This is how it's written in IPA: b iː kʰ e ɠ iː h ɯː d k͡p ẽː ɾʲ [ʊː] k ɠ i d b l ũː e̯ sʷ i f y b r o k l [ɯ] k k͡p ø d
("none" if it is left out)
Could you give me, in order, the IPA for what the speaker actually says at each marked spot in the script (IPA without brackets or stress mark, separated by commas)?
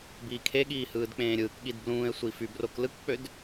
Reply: ɯː, ɯ